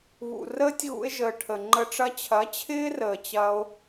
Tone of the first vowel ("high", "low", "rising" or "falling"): low